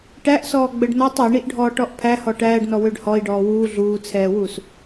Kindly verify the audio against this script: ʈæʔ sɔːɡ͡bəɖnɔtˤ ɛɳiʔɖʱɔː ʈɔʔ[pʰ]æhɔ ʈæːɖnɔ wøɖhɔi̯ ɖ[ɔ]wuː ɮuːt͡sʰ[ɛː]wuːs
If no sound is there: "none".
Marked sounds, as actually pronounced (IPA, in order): pʰ, ɔː, ɛː

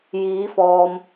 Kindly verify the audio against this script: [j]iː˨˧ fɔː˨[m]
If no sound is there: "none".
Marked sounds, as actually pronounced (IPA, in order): j, m

